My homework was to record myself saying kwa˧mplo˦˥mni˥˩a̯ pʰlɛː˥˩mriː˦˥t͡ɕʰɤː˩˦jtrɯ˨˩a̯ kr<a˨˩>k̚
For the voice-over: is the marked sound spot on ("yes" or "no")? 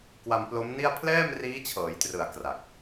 yes